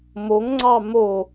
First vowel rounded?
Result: yes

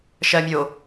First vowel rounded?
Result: no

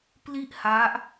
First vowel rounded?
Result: no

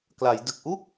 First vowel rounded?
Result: no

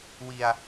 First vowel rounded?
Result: no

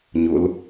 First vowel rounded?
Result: yes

